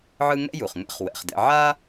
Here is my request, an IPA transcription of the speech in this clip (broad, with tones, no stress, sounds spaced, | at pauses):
ʕ ɯ˦ ŋ ɛ̰˥ j u˩ χ ŋ ɛ̰˦ χ w ɛ̰˩ χ d ɛ̰˨ ʕ a˥